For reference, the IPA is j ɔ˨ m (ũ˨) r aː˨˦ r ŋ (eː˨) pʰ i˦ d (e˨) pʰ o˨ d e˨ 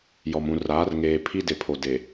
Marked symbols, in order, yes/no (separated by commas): yes, yes, yes